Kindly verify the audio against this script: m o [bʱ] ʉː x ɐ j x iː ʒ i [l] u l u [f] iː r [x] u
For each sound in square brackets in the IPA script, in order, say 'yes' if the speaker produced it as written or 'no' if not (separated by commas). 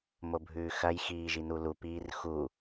yes, no, no, yes